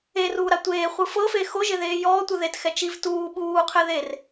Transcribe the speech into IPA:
eruːɾa tʷeːχʷɯ fɤfe xoʒeðeː jɔːtʷɯ ðetxɛ t͡ʃiv tuː ɓuːqʰe ðer

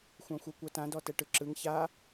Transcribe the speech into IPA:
xʷãxʷɤkʷɤtã dɔtɛʈɯǁɯŋ ça

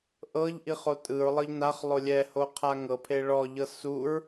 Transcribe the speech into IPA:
ʔɤʎ ʔiχotʼɯɹlˠɤʎ naχlˠo lʲɛho qʰaŋɤpʰe ɭɔʎɤ suɹ

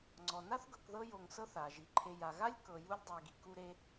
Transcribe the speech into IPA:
ŋ͡ǀɔ˩na˥θɡɤ˨kðɤ˦ jo˨ŋsɤ˥θ a˩ ʒi˩ǃʰe˨ ja˩ɣa˥lʲ kɤ˨ ju˦lʲdˤɛ˨ɡi˩ ku˦ɾe˦

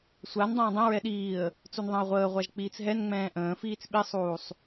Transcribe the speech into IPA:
sʷandˤə̃ː dˤɛ̃ɹɛ ɗiːə̯ | t͡sunðˤɛ̃ə̯ʁʷəːʁʷaʒ k͡piːt͡sɦɛnŋ͡mɛ̃ː ʔə̃ː fiːt͡sɓisˤuːsˤ

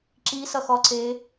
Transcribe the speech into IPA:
ǁisʌxɔǀe

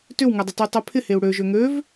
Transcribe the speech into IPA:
tʏwŋɛdˤɐty tˤøpʰɪheu̯ ɽø ʒøŋøv

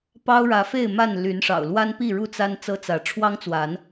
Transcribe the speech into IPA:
pɑ˦ʊ̯ɻä˨˦fe˥˨ɪ̯ma˥˨n ly˨˦nʂɑ̰˨˩ʊ̯ lwa˦npi˥˨ɻu˥˨ t͡sa˦n t͡sɤ˦t͡sä˨˦ ʈ͡ʂʰwɑ˦ŋt͡swa˨˦n

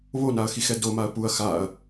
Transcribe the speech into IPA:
βonaɐ̯xixɛ domaɐ̯ puɐ̯ xaɐ̯

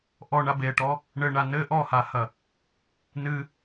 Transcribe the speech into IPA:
ʔɔɳa beʈɔ | ɳɘɳa nɘ ʔɔhahɐ | nɨ

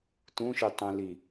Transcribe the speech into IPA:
tũʃi tˤũli

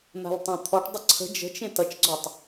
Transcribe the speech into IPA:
n̪a̤ltˤẽt̪ʰɔʈdˤə ǀʰə̤ d͡ʒə̤t͡ʃẽt ʌt͡ʃɡ͡ǀɔtˤ

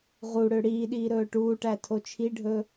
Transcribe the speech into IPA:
ʁuɽø ɽiːɗiː ɾɵːʈuːʈæ tʰot͡ʃʰiɖʱɵ

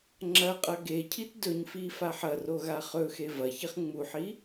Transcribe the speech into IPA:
ŋ͡ǁɐ qʼɐɡecʰit dɵɲfi faħɐro ɣaχɵxe vɐçiχ ŋ͡muħi

